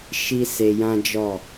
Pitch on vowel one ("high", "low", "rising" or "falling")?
high